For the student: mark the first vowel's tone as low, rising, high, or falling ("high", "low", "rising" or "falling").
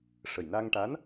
low